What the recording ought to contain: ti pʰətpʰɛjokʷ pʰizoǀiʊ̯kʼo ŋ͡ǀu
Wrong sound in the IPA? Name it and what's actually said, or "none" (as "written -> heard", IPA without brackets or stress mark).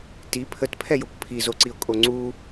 none